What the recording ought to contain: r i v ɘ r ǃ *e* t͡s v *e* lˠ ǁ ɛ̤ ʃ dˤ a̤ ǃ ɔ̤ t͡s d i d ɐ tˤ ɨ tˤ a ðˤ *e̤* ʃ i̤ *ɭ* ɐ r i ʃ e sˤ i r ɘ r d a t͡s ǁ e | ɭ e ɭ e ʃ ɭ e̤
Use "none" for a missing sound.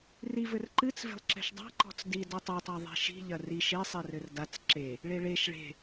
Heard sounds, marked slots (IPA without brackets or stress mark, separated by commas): ɨ, e̤, i̤, ʎ